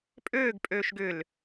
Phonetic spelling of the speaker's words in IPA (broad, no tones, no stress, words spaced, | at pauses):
pʼøːɡpʼøːʃ ɡʏl